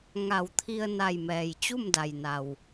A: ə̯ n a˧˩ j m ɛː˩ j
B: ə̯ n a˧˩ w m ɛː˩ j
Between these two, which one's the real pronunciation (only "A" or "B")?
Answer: A